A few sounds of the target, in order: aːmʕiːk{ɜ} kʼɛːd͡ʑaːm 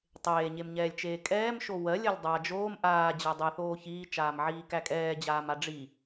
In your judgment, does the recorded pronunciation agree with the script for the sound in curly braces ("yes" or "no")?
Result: no